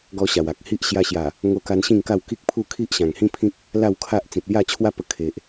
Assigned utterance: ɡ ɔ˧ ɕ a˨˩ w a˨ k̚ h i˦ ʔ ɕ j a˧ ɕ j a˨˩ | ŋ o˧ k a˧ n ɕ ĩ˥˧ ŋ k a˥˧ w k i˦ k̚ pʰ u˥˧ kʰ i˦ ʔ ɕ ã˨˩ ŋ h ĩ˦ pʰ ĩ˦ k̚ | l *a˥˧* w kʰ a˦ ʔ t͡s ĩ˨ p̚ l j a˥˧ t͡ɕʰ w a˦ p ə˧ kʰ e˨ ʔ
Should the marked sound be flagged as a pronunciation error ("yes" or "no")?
no